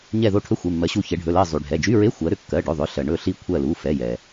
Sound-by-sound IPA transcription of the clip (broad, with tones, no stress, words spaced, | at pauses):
ɲɛ˧˩ðo˧˩ ʈʰɵ˧˥˧xʷe˩˧˩mːɜ˩˧ɕu˧˩ çɛ˩˧ɖʱɵ˩˧˩lɜ˧˩zˤy˩ ɖʱɛ˩˧˩d͡ʒy˧˥˧ɹe˧˥˧ xʷɜ˩˧ɾʏ˧˩kːɜ˩˧˩ɖɵ˩˧˩ ðˤʏ˩˧˩ɬɜ˩ ɳɵ˧˩ɬi˧˩ kʷʰɜ˧˩lu˩˧˩fɛ˩˧˩jɛ˩